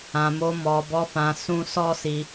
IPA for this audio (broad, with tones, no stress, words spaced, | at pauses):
ã˨mo˧mɔ˨bɔ˧ fã˨sũ˧sɔ˦si˧